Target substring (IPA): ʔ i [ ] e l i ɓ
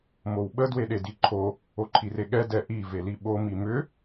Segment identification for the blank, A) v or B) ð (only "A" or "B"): A